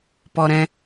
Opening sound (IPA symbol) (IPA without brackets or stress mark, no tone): p